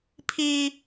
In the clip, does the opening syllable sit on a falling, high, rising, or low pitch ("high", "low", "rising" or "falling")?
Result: high